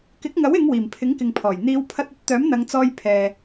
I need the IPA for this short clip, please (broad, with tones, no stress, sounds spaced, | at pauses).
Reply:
k ɪ˨˥ k̚ ŋ ɐ˨˥ w ɪ˨˧ ŋ w iː˨˩ m pʰ ɪ˨˥ ŋ k ɪ˨ ŋ pʰ ɔː˨˩ j n̪ iː˨˧ w pʰ ɐ˧ t̚ ɵ˥ t̚ t̪ œː˨˥ m n̪ ɐ˨˧ ŋ t͡s ɔː˧ j pʰ ɛː˨